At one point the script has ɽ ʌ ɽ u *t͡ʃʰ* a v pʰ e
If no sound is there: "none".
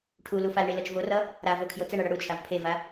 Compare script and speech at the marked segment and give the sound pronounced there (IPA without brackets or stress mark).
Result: t͡ʃʰ